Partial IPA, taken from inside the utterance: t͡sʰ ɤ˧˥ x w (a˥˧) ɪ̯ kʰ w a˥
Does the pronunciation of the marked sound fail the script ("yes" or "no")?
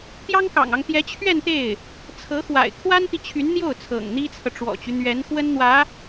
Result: yes